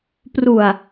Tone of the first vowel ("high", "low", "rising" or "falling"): low